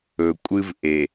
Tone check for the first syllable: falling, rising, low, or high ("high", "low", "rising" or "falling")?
low